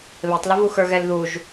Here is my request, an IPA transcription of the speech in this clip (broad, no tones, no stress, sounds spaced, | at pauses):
β e tˤ l ə v u x ə˞ ɣ ɛ l ð u ʒ